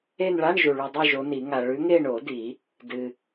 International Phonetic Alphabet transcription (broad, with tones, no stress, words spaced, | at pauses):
e˦˨nɭa˧˥˧ɳ ʒu˨ɭʉ˨dˤʉ˦˨ ʒo˨˦ni˨˩˦ŋa˨ ɭʉ˨˦ŋe˦˨ɳo˨˩˦ di˨˩˦ | dɨ˨